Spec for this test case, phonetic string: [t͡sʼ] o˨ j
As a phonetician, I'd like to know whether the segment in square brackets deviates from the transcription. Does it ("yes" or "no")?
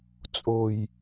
no